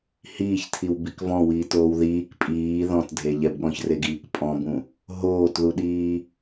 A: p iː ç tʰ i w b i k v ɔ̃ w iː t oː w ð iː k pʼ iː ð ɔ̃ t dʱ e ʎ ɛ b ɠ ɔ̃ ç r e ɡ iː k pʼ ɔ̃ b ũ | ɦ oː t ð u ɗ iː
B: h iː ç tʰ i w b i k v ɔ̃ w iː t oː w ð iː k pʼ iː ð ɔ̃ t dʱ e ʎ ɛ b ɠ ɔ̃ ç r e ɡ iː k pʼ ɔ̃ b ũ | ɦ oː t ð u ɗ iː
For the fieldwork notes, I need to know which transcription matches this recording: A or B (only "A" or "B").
B